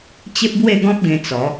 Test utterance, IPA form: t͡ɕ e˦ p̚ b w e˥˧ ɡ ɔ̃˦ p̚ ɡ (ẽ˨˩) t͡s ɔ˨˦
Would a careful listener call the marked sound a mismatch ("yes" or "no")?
yes